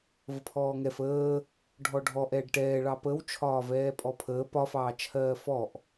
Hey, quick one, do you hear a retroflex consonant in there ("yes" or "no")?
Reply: yes